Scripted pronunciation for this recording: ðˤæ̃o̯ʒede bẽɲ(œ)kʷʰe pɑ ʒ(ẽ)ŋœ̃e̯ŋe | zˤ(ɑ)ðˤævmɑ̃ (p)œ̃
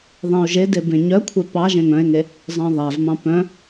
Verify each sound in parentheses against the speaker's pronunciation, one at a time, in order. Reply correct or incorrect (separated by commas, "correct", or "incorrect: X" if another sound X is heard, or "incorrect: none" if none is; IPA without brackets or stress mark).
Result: correct, correct, incorrect: ɑ̃, correct